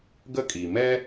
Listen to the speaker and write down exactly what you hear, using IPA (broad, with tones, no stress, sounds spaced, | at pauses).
ɡ ə˥ kʼ i˩ m ɛ˥